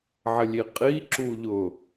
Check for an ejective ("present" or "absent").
present